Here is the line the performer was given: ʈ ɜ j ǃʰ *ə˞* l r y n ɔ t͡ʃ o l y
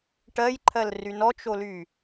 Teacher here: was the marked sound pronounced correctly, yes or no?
no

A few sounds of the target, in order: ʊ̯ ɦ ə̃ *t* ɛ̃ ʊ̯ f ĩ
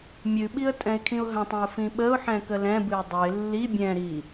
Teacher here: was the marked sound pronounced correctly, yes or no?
no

